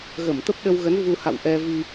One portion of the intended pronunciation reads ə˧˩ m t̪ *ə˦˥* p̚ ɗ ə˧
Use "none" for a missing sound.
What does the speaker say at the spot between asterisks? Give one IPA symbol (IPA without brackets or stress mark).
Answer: ə˦˥